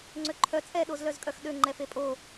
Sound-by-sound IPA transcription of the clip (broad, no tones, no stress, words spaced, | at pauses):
ŋ͡ǀøǃʰœ t͡sʼɛ ɗozlœzkʼœxɗø ŋ͡ǃɛfepʼo